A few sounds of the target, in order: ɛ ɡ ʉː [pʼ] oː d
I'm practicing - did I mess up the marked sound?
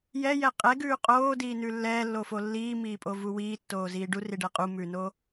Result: yes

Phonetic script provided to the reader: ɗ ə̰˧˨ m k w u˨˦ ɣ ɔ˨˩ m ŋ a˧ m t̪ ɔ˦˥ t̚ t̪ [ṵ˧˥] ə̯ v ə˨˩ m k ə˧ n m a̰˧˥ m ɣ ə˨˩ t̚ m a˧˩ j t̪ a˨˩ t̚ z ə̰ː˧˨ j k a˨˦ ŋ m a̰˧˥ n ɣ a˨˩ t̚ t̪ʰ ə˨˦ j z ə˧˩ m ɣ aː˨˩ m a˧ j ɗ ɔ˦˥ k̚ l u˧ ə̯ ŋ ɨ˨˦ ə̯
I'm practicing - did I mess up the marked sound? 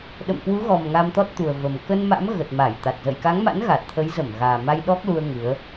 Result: yes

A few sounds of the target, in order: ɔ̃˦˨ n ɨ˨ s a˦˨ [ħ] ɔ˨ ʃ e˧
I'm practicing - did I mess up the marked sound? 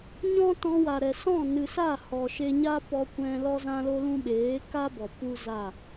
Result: yes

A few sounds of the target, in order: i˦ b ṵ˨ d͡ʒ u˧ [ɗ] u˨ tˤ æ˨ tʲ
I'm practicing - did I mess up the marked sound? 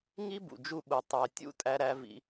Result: yes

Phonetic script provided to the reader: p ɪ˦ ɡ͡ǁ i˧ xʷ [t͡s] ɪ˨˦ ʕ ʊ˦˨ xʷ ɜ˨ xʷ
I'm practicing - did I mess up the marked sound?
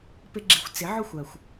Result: no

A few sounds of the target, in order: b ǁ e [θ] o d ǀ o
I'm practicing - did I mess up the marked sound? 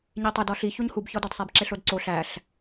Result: yes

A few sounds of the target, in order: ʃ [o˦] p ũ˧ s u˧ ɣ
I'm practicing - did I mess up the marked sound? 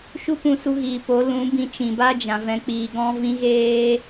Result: yes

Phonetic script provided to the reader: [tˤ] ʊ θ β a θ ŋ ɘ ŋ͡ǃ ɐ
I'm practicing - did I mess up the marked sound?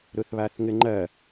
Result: yes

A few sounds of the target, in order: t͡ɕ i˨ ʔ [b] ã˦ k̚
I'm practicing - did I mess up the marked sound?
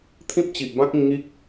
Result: no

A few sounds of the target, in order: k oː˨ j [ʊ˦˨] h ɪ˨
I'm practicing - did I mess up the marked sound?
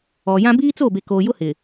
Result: yes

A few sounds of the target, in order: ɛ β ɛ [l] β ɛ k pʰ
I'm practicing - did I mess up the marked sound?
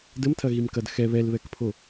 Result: no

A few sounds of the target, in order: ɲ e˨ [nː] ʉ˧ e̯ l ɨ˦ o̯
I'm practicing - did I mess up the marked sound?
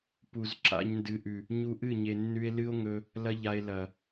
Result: no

